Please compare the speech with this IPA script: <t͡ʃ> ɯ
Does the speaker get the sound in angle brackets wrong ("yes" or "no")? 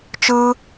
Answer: no